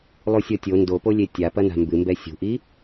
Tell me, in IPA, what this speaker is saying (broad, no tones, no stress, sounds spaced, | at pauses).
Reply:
lˠ u sʲ ɔ tʲ o n d o p o lʲ e tʲ a p ɐ n a̤ m b ɨ m b ɛ sʲ ṳ ʔ i